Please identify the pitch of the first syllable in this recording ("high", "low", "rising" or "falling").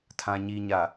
low